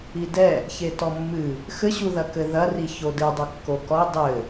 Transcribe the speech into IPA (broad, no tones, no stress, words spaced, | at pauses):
idɛ | çetɔmːɨ | xɘɕuðɐ kɘðɐri çodɨdˤo kːokɔ dˤɘ